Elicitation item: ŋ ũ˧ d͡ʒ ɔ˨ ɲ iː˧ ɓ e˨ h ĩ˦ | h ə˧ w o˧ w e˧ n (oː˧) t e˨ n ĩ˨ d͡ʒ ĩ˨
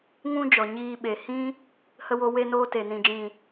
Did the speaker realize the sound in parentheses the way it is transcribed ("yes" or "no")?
yes